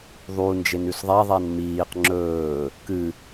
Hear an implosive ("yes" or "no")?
no